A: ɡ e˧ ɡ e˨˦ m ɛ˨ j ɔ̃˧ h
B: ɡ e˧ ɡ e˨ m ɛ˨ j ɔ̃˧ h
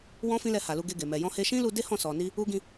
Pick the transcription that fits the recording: B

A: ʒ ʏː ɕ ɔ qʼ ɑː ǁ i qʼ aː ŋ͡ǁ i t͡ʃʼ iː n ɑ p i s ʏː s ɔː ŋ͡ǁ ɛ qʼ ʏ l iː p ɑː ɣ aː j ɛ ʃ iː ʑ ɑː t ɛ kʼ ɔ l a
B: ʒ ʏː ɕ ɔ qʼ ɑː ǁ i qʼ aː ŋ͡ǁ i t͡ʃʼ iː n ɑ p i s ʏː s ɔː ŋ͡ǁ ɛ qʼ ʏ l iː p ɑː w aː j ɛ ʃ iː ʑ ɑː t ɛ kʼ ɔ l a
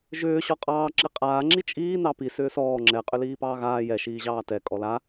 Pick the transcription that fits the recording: A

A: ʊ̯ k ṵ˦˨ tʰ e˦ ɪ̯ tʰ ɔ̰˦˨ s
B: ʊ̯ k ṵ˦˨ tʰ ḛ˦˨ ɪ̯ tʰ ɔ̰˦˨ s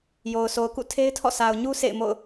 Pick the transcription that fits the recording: A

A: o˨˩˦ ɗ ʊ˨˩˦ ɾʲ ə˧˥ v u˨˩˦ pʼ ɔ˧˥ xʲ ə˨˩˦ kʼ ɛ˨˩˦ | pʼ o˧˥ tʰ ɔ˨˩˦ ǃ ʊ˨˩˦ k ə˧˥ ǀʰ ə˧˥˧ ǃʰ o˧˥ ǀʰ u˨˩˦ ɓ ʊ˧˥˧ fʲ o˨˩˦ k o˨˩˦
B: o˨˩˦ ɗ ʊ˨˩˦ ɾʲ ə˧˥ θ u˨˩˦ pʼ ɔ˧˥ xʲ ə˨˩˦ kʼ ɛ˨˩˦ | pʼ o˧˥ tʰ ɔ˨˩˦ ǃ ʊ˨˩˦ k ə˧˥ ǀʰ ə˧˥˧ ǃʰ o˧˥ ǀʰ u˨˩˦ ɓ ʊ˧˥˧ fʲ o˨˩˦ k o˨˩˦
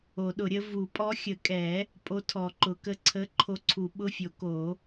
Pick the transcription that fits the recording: A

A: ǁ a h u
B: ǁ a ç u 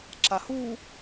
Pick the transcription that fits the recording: A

